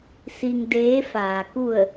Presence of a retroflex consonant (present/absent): absent